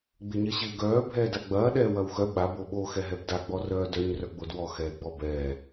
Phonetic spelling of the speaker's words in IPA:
ɡ͡b ɪ ɲ ɐ ɕ ɪː ɡ œː bʱ ɛː d a ɡ͡b ɐː ɗ ɛː w ɐ w x œ ɓ a b o ɓ o x ɛ ɦ ɛ b d a ɡ͡b ɔ r œː d œ ɲ r œ ɡ͡b o d w ɔ x ɛː ɡ͡b ɔ b ɛː

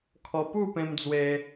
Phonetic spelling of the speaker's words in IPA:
kʰ ɔ˧ p u˥˧ p ẽ˧ m d͡z w e˧

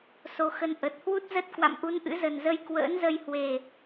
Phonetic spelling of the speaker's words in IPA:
s o˨˦ x ə˧ n ʔ ə˨˩ t̚ h w u˦˥ t̚ z ə˦˥ t̚ k w a̰˧˨ m ʔ u˨˦ n ʔ ɨ̰˧˥ z ə˨˩ n z ə˧ j k w ə̰ː˧˥ n z ə˧ j h w e˨˩

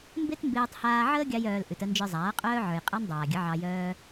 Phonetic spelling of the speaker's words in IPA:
m b e˦ t m b eː˧ tˤ h aː˧ ʕ əː˦ ɡʲ ɑ˦ j œː˧ l ʔ ʉ˨ t ə˧ n d͡ʒ ə˞˧ zˤ aː˨˦ qʼ œː˦ ʕ ə˞˨ j qʼ a˦ n dˤ aː˨ ɡʲ ə˨˦ ʕ ɑ˧ j œː˦

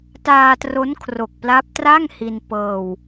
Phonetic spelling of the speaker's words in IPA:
t aː˧ t r o˦˥ n kʰ r o˨˩ k̚ p l a˦˥ p̚ t r a˥˩ ŋ h i˧ n p ɤː˧ w

